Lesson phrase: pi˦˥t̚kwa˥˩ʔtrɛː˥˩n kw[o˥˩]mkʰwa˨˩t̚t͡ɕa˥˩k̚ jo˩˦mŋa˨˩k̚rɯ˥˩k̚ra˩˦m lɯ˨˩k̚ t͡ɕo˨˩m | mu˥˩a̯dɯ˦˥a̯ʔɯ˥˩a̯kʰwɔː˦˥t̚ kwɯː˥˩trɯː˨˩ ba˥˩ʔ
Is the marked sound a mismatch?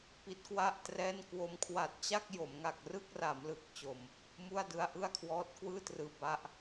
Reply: yes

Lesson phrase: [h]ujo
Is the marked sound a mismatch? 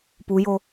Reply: yes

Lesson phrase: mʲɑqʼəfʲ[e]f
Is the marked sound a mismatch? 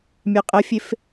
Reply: no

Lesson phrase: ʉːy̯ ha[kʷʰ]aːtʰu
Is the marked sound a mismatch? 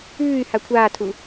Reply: no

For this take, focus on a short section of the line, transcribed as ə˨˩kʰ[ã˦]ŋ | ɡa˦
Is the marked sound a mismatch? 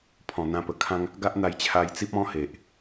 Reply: no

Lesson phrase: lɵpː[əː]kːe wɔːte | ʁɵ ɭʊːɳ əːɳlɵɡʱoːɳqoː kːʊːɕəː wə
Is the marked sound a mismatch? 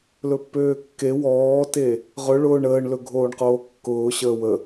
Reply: yes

